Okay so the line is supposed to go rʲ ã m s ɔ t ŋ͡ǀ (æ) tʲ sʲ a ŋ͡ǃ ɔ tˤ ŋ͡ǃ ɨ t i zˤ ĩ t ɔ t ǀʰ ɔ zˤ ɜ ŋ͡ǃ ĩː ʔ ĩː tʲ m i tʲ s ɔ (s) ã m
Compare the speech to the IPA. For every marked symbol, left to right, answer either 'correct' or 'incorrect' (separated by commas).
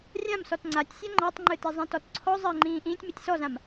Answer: incorrect, incorrect